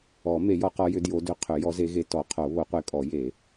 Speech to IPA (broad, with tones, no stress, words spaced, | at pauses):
ɔ˨˩˦ me˨˩˦jɔ˨˦qɔ˨˦jʏ˨˦ djo˨˦dʏ˨˦qʰʏ˨˩˦ jɔ˨˦ze˨˦ɣe˨˦ tɔ˨˩˦qʰo˨˩˦ βo˨˩˦qʷe˨˦kʼɔ˨˩˦ je˨˩˦